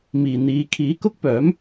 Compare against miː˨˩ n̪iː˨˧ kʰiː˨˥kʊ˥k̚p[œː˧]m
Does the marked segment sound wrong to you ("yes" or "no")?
yes